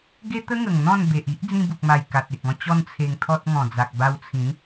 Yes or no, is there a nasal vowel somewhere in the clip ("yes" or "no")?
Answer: yes